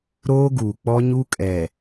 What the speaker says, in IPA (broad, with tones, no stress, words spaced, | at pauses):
ɾoː˦ ɡuː˨k͡pɔ˦ɲu˦kʼɛ˨